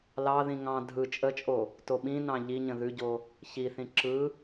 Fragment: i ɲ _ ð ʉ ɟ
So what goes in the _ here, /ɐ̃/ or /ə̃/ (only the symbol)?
ə̃